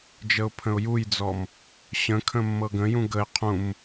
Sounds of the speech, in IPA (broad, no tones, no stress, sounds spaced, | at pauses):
d͡ʒ ə ʊ̯ pʰ ə̃ ʊ̯ j u j d͡z ɔ m | ɕ ə̃ kʰ ə̃ mː ɤ ɡ ə̃ j ũ ɡ ə ɪ̯ qʰ ũ m